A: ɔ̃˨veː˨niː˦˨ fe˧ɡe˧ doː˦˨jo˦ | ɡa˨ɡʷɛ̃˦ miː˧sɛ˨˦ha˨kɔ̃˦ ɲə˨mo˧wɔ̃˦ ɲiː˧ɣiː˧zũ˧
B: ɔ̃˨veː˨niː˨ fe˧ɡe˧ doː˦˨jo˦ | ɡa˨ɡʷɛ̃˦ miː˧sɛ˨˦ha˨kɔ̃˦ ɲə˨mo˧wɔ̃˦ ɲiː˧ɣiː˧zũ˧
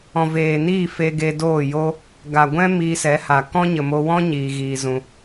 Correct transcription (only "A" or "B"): A